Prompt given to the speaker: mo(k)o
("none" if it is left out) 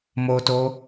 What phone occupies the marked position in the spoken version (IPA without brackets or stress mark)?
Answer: t